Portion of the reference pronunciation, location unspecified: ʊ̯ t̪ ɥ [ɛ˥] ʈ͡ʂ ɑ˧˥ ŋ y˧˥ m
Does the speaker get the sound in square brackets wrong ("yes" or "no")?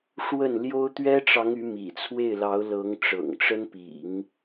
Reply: no